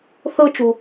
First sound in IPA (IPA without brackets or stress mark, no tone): θ